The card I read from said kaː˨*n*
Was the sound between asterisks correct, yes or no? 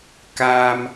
no